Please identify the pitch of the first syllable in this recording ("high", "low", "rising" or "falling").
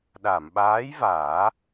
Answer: low